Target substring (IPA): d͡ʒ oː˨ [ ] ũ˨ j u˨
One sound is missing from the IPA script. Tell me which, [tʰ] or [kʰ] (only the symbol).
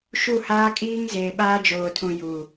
tʰ